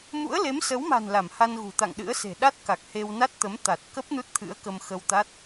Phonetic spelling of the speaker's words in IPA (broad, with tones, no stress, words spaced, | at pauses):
mṵ˧˥ə̯le˨˦msə˨˦wma̤˨˩n la˧˩mha˧n ɣṳ˨˩t̪a̰˧˨ŋɗɨ̰˧˥ə̯se̤˨˩ ɗa˦˥t̚ka˨˩k̚he˧wna˦˥t̚ t̪ə˨˦mt̪a˨˩t̚kə˦˥p̚ nu˦˥t̚t̪ʰɨ̰˧˥ə̯kə˧m xə˧wt̪a˦˥t̚